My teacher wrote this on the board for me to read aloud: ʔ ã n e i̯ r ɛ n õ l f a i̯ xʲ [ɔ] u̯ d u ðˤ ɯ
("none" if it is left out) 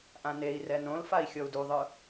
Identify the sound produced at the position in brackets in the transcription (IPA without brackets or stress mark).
ɔ